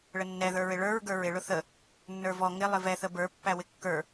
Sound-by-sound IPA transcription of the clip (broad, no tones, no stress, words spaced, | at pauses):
ɭənːɛðə˞ɹɪ ɭə˞ɹ ɡə˞ɹɪɭʊ θə | nːə˞vɔ ŋɪ lˠɪvɛθə bə˞pːæ wɪkːə˞